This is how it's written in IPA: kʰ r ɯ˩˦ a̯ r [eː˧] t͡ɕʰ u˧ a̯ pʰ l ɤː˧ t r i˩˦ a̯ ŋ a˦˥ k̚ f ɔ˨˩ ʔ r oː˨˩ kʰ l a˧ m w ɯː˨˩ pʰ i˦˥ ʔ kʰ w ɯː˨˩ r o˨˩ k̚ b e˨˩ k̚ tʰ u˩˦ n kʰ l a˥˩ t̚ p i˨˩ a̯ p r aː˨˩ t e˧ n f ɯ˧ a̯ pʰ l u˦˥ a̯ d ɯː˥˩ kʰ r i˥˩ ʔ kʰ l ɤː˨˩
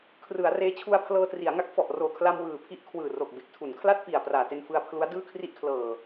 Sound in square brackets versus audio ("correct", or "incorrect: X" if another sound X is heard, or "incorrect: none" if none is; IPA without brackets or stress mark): correct